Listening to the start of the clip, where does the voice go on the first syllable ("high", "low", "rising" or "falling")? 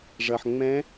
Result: low